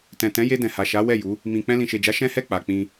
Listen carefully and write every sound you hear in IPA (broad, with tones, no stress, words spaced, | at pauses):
tɛ̃˨tɛ̃˨˦je˧ dɛ̃˨ha˨ʃa˨˦ wɛ˦˨ju˨˦ | mĩ˨ k͡pɛ̃˧lĩ˨ʃe˨d͡ʒa˨˦ ʃɛ̃˦hɛ˦˨k͡pa˨k͡pĩ˧